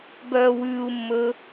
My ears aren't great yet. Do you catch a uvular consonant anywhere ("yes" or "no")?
no